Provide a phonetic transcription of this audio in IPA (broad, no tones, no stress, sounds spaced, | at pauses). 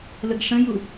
l ə ɡ ʂ ə̃ j u